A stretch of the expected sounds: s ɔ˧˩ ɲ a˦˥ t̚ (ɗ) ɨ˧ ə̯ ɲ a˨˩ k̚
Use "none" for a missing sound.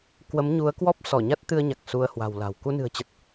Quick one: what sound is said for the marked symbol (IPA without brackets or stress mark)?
t̪